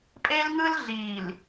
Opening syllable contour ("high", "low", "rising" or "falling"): high